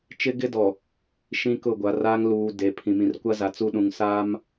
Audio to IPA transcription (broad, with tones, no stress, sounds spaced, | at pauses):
t͡ʃ ɪ˦ ɡ ɪ˦ d ɔ˨ | ʃ ĩ˦ k ʊ˦˨ ɡʷ a˨˦ r aː˦ ŋ l uː˨ d e˨ pʰ ĩ˨ m ĩ˨ r kʷ a˦ z a˨ t͡s u˦ ɗ ũ˨ ŋ s aː˦ m